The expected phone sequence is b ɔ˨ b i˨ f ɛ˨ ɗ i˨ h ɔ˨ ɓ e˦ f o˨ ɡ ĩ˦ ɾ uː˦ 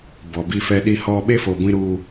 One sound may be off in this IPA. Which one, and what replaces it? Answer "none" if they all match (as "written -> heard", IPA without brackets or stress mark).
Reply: ɡ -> ɡʷ